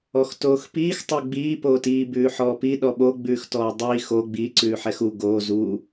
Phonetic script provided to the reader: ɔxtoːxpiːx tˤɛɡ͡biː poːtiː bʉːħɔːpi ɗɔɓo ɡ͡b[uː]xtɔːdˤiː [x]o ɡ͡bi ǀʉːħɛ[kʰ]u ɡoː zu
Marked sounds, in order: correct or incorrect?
incorrect: ʉː, correct, incorrect: x

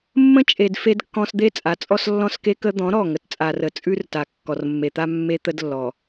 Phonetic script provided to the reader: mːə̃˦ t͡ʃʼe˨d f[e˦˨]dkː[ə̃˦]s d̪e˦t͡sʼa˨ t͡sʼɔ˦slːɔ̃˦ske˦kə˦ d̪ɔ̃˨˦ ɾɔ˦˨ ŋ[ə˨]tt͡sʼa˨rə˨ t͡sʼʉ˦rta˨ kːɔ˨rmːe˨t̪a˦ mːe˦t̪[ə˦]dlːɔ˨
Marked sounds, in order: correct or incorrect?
incorrect: e˦, incorrect: ɔ̃˦, correct, correct

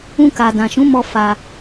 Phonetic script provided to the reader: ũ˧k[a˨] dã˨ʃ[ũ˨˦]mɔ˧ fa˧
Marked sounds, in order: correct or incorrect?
correct, correct

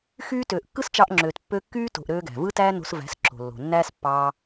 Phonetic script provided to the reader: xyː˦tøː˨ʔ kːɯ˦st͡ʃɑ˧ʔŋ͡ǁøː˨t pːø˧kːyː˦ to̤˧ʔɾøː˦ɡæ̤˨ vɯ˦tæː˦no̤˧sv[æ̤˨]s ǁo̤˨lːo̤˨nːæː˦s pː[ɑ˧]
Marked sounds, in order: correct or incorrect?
incorrect: æ̤˨˦, correct

